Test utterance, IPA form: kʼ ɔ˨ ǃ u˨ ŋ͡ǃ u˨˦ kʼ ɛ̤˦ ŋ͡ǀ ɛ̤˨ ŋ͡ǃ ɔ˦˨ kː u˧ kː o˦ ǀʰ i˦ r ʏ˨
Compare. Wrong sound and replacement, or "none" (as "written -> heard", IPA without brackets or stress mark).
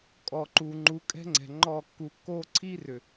none